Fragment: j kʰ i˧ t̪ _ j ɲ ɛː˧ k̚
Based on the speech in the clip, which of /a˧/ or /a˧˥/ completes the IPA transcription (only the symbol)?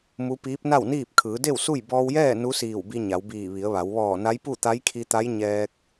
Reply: a˧˥